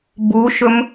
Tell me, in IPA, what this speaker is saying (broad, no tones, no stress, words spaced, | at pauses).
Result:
buʃɵm